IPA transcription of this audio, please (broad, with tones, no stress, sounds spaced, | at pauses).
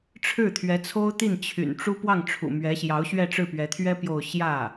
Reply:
ʈ͡ʂʰ ɻ̩˥˩ t̪ʰ ɥ ɛ˧˥ t͡sʰ o˥ ʊ̯ t̪ i˥˩ n t͡ɕʰ y̰˨˩ n ʈ͡ʂ u˥ p w ɑ˥˩ ŋ ʈ͡ʂʰ ṵ˨˩ m ɥ ɛ˧˥ ɕ j ɑ˧˥ ʊ̯ ɕ ɥ ɛ˥˧ ʈ͡ʂ ɻ̩˥˩ p ɥ ɛ˧˥ t̪ʰ ɥ ɛ˥ p j o˥˧ ʊ̯ ɕ j ä˥˩